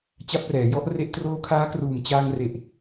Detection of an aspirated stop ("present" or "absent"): present